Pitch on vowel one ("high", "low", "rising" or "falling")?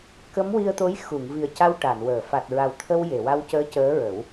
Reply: rising